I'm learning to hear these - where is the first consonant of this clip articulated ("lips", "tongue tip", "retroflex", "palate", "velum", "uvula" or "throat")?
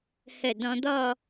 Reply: throat